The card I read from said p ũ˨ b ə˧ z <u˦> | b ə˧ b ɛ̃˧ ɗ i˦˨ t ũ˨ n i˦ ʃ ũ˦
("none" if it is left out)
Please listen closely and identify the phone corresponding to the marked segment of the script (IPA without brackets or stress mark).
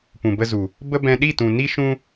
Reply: u˨